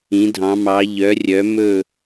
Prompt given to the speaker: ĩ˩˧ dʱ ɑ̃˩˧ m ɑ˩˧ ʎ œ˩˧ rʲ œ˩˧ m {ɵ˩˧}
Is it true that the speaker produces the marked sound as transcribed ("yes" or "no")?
no